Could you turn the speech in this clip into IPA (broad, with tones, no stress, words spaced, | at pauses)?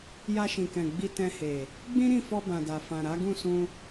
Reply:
ja˧ʃĩ˨kɛ̃˨ ɡ͡bi˧ tɛ̃˧he˨ | ɡ͡bĩ˦ɾĩ˦˨fɔ˧ bã˨da˨fã˨ ɾa˨˦ɡũ˦˨ sũ˧